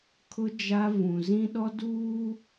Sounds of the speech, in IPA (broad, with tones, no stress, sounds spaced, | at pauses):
kʰ ʊ˦ d͡ʒ a˦ v ũ˨ z ĩ˦ ɗ ɔ˦ d uː˦